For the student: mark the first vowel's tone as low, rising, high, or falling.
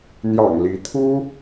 low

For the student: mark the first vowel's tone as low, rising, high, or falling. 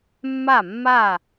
falling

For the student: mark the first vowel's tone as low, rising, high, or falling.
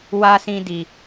low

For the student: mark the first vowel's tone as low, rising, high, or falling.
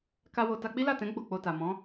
high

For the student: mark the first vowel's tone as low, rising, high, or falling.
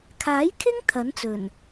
rising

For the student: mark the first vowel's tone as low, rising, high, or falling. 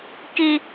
high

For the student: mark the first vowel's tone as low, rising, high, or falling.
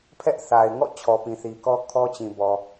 high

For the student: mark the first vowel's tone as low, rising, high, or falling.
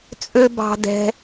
high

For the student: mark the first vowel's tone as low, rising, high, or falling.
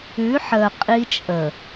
rising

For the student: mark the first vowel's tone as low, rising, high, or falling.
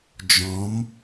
rising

